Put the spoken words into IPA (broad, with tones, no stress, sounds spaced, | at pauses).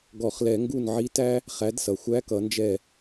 ɡ ɔ˧˩˧ χ l ɛ˧˩˧ ŋ ɡ u˥˩ n ʕ i˧˥ t æ˥ | χ æ˩˥ d s ʌ˩ xʷ æ˧˥ k ʌ˩˥ n d͡ʒ ɛ˥˩